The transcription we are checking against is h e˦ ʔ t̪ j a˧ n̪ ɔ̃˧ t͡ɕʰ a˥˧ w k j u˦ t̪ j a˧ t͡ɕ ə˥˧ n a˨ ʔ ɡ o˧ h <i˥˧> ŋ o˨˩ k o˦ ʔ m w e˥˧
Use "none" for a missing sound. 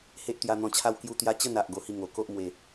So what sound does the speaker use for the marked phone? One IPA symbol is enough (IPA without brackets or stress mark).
i˥˧